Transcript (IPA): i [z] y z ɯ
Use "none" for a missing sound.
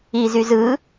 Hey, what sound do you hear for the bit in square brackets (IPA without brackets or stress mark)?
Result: z